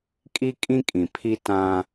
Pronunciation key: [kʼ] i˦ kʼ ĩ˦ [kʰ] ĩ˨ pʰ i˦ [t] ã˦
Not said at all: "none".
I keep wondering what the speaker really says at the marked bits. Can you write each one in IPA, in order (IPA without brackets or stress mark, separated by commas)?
kʼ, kʼ, t